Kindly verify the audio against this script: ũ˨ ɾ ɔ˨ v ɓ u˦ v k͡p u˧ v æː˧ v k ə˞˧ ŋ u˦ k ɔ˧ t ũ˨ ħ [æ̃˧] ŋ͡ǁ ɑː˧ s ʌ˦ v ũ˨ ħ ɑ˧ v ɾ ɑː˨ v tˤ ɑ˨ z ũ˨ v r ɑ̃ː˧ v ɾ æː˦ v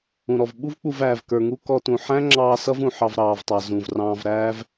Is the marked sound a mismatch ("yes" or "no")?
yes